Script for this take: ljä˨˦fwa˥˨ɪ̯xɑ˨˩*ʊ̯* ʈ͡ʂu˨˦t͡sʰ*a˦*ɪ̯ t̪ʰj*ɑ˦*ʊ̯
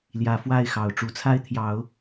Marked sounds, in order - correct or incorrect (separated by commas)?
correct, correct, incorrect